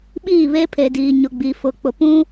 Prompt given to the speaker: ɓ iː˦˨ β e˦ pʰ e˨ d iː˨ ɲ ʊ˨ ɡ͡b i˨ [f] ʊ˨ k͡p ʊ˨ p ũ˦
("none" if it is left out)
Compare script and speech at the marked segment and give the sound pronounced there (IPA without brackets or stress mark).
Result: f